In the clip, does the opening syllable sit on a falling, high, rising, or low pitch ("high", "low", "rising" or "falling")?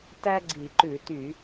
high